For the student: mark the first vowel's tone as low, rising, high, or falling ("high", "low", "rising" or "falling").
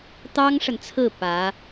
high